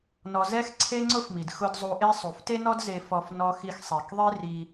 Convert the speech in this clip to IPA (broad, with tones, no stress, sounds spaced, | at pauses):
n ɔ˧ z ɛ˥ x ǀʰ e˥ ŋ͡ǀ ʊ˥ f m i˩ d x ʊ˧ d zˤ u˧ ʔ e˥ sˤ u˩ f t e˥ n ɔ˥ d z e˧ f ɔ˧ f n ɔ˧ x i˧ x sˤ ɛ˩ k ðˤ e˥ r i˧